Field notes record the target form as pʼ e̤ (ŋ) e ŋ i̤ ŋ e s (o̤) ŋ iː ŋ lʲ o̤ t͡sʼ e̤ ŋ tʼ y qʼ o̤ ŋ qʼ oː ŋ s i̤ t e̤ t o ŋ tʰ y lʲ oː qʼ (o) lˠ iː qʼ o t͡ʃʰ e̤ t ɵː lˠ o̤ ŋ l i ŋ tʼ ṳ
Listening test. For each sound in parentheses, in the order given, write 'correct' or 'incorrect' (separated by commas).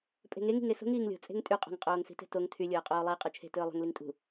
correct, correct, incorrect